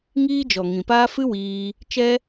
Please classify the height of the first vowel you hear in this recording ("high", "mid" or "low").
high